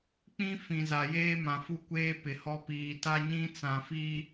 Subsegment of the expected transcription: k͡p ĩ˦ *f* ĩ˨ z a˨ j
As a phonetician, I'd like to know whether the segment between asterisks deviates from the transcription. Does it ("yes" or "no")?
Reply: no